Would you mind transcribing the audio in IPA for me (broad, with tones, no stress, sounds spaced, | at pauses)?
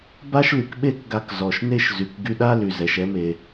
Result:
b a˥ ʃ l y˩ k ɓ e˥ k ɡ a˧ k z ɔ˩ ʃ n e˥ ʃ z y˩ k ɡ y˧ ɗ a˥ l y˩ z ɛ˩ ʃ ɛ˧ m e˩